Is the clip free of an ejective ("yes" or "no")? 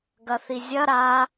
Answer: yes